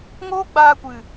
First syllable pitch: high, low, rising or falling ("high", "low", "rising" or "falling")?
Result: high